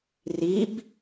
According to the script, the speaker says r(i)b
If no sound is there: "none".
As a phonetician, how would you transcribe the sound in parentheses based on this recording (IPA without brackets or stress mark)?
i